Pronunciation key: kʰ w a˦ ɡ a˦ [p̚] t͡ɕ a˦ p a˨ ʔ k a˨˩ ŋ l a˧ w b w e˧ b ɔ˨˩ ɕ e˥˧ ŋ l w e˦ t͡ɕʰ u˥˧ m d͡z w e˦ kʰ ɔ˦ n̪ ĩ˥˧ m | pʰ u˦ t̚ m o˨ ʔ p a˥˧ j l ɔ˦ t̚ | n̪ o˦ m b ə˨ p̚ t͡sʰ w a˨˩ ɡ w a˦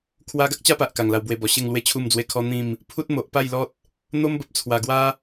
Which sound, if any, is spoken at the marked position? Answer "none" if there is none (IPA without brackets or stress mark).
k̚